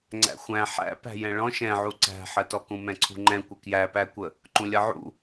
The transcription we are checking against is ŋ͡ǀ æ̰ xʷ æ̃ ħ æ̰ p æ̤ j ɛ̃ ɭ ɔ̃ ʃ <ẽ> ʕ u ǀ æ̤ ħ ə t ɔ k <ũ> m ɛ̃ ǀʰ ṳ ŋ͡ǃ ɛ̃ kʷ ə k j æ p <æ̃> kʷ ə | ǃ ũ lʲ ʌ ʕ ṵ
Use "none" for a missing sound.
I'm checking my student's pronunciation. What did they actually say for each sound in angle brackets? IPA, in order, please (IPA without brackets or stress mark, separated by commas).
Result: ɛ̃, ũ, æ